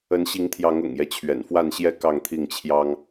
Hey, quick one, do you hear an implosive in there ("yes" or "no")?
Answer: no